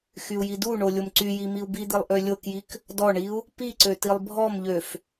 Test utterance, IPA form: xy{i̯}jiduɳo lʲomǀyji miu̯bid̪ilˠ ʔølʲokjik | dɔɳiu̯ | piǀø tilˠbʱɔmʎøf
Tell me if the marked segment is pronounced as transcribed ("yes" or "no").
no